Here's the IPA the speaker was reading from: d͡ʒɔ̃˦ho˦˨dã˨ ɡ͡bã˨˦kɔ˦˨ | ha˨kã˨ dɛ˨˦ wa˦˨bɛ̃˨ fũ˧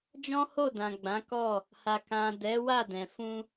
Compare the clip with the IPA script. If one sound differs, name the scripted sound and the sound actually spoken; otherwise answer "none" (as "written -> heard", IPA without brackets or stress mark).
b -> d